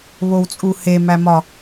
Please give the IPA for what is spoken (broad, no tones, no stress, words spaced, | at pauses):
βowt͡sʼuhemæ mɒ